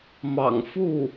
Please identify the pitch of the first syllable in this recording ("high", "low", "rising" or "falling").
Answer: low